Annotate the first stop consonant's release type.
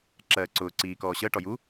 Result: click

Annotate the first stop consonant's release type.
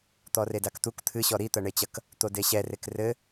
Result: plain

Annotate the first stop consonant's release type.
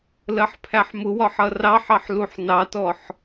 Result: aspirated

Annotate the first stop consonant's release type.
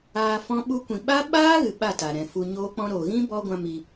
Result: implosive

